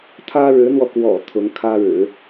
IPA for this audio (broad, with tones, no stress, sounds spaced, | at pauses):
t̪ʰ ä˥ ɻ ɻ̩˧˥ n̪ w ɔ˧ k w ɔ̰˨˩ t̪ʰ ʊ˧˥ ŋ kʰ ä˥ ɻ ɻ̩˨˩˦